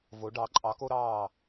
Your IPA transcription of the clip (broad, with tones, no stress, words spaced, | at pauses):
vo˩˧ ɖɑ˩˧ǃʼɑ˩˧ko˧ɾɑː˧˩